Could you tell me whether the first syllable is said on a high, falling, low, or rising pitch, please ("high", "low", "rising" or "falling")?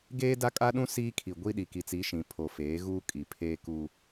high